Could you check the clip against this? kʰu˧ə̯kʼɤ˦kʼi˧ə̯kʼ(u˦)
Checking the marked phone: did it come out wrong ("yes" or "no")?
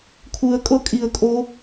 yes